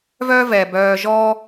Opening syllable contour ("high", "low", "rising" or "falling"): high